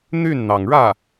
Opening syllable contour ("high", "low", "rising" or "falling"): falling